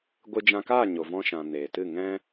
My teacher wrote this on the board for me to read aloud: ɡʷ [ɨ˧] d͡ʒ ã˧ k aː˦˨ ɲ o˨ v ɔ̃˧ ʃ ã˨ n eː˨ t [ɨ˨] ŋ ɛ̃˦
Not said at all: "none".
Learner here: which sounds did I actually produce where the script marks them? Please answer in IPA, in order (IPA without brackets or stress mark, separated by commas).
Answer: ɨ˧, ɨ˦˨